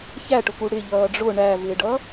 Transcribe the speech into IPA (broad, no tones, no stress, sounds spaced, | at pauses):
ç æ ʈ ʊ k u ɽ ɪ ʎ ʌː ɖ͡ʐ ʊ ɳ æ v ɪː ɖ ʌ